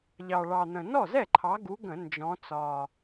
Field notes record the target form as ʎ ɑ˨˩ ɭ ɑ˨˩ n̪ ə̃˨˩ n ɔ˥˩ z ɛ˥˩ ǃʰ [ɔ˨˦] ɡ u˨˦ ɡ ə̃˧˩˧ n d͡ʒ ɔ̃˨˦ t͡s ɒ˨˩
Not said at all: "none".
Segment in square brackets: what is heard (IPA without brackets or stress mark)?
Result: ɑ˨˦